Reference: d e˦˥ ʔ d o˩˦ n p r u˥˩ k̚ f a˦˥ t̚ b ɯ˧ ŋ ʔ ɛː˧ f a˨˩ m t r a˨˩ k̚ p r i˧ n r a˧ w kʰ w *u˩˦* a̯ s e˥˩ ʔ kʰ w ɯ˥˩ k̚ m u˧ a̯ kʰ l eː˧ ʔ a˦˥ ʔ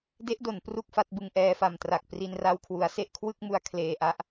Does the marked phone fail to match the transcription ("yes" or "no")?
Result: no